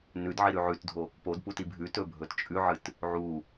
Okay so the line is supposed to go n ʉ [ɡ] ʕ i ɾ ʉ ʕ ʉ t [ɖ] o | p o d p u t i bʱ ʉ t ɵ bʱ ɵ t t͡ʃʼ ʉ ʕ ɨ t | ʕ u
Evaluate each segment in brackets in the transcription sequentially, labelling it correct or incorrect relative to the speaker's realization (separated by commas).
incorrect, incorrect